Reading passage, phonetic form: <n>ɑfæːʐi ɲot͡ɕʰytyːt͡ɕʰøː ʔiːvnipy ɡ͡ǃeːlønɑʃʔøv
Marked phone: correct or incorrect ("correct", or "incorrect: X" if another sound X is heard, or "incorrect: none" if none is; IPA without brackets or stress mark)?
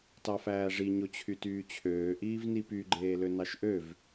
incorrect: t